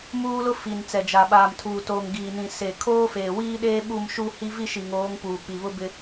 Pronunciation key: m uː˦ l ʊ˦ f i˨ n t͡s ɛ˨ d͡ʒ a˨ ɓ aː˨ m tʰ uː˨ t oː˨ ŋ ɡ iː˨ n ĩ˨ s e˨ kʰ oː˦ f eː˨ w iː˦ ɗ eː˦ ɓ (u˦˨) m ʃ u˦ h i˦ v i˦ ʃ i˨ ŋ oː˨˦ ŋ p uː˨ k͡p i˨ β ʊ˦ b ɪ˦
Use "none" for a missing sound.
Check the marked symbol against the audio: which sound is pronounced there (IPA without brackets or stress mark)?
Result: u˦˨